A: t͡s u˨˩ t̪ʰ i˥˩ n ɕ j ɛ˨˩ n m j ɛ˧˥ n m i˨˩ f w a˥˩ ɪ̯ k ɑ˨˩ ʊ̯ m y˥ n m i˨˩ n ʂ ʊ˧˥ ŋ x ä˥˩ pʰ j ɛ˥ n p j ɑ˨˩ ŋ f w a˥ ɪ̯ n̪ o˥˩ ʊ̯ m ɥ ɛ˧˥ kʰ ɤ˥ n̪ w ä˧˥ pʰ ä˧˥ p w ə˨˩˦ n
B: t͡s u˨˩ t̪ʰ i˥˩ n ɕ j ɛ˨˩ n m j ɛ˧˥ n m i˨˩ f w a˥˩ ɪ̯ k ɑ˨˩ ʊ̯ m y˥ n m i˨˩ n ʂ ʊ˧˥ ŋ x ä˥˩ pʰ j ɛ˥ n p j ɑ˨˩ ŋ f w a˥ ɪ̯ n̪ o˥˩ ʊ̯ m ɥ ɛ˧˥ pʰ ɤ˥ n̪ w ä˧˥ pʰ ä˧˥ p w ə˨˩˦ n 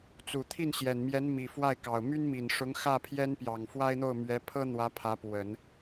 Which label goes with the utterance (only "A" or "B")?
B